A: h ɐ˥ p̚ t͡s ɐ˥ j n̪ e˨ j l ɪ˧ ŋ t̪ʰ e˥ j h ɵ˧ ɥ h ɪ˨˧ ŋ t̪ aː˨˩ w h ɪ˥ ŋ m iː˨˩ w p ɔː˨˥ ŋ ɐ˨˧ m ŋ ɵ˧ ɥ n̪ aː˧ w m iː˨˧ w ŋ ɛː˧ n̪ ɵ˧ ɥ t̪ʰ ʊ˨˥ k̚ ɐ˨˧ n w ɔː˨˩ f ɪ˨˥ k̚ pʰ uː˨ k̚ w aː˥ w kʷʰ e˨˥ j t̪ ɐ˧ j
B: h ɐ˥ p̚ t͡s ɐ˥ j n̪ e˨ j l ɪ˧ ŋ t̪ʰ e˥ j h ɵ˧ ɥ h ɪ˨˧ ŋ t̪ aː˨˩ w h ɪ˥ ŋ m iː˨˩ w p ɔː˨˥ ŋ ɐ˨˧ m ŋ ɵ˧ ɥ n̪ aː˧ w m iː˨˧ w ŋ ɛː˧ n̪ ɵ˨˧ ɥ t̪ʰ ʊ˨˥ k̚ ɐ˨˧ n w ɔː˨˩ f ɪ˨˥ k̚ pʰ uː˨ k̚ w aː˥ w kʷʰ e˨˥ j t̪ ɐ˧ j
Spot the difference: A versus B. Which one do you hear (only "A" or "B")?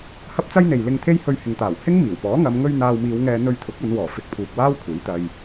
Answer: A